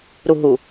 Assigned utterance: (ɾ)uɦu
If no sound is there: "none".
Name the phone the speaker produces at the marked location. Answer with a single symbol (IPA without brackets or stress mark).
ɾ